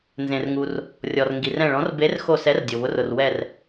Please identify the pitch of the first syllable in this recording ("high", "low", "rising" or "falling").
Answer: low